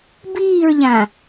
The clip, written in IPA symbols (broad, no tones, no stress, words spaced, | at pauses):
biːɹʎã